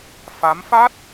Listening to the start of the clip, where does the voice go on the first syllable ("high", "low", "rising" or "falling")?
rising